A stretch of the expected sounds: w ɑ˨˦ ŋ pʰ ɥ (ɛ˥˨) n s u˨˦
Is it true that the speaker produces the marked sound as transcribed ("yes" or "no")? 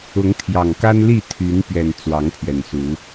no